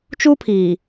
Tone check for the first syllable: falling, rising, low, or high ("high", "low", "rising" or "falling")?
high